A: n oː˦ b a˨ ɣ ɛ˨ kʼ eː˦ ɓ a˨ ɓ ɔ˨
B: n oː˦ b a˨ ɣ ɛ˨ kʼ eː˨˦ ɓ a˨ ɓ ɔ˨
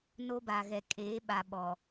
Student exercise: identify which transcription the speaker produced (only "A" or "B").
B